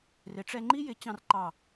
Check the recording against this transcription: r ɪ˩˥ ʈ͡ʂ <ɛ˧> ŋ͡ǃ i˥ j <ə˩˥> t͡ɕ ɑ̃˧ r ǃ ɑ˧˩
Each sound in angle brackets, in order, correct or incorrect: correct, incorrect: ɪ˩˥

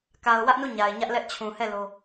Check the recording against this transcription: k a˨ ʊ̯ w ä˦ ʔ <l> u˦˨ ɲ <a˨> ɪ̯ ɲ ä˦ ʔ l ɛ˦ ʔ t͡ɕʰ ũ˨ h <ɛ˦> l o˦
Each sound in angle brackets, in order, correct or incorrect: incorrect: n, correct, incorrect: ɛ˦˨

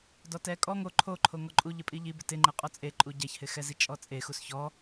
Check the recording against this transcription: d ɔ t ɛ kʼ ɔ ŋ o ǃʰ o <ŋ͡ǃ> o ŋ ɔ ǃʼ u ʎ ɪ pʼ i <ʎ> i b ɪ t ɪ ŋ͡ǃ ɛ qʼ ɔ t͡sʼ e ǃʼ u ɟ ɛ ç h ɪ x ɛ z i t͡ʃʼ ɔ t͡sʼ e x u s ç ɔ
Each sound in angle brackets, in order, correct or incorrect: incorrect: ǃʰ, correct

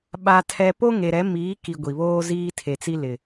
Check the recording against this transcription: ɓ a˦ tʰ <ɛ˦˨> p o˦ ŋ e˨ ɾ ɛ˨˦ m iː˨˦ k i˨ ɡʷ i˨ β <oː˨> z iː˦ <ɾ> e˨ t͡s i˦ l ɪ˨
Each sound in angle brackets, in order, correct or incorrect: incorrect: ɛ˦, incorrect: oː˦, incorrect: tʰ

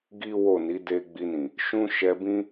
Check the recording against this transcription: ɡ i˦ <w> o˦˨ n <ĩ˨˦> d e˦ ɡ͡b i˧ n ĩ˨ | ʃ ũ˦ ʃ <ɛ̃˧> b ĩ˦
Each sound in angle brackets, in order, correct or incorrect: correct, incorrect: i˨˦, incorrect: ɛ˧

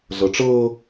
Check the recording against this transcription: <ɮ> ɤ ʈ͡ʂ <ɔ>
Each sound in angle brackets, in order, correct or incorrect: correct, incorrect: ɤ

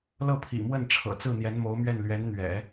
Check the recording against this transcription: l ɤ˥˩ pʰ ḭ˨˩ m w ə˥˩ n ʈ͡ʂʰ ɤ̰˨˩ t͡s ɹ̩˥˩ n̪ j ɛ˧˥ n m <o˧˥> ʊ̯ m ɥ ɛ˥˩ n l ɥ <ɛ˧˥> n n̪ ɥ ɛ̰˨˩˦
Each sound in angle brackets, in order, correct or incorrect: correct, correct

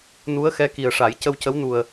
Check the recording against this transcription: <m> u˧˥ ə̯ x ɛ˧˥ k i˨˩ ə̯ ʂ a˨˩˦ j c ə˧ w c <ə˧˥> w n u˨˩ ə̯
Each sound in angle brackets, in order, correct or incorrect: incorrect: n, correct

